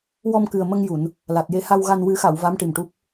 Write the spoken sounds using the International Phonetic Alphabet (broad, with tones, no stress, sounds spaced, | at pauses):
w ɔ˧ m k ɨ˨˩ ə̯ m ə˧ ŋ j u˨˩˨ n | l a˨˩ t̚ j e˧ h a˧ w ɣ a˧ n w ɨ˨˩˦ x a˨˩˨ w v a˧˥ m ʈ i˨˩ m ʈ u˦˥ p̚